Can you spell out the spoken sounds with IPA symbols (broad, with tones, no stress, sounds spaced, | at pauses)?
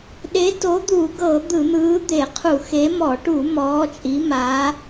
ɗ e˨˥ t o˨˥ d̪ u˧˩˧ ɡ ɤ˧˩˧ d̪ ɯ˧˩˧ n̪ ɯː˨˥ d̪ e˧˩˧ qʰ u˧˩˧ x e˨˥ m ɔ˧˩˧ ʈ u˧˩˧ m ɔː˨˥ t͡ʃʼ i˨˥ m a˨˥